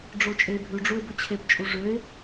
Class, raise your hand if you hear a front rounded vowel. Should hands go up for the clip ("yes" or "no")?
yes